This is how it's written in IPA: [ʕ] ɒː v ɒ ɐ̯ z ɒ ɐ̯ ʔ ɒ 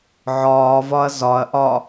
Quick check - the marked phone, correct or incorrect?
correct